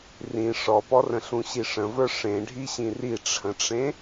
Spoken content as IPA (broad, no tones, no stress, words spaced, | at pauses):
rĩ ʂɔpɔrə̃ ɬũɕiʂə̃və˞ ʂẽɖʱiɕĩ riʈ͡ʂʰə̃ʈ͡ʂẽ